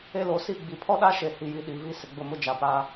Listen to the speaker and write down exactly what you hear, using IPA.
e˦ l o˨˦ s i˦˨ ɡ͡b i˨ pʰ ɔ˦ ɗ a˦ ʃ e˨ h i˨ j i˨ ɗ i˨ v i˦ s ɪ˨ ɡ͡b ʊ˦˨ m ʊ˦ d͡ʒ a˨ p a˦

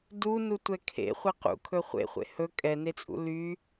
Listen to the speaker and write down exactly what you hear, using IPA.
d u n u tʷ ɛ kʰ ḛ χʷ ɛ q ṵ kʰ ɵ χʷ ḛ χʷ ḛ h ɵ kʼ ɛ n e t͡sʼ ṵ l y

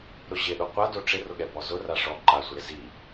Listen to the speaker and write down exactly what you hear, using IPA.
ɾ ʊ ʑ ɪ ɗ o qʷ a d o ʈ͡ʂ ɪ r ʊ ɠ ɛ b ɔ z ʊ r a ʂ ɔ ǃ a sʷ ɪ ɾ ɪ z i

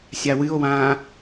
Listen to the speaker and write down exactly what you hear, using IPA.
sʲ a w ɨ o̯ w ãː

